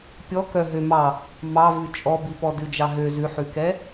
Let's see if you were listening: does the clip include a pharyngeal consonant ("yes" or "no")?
yes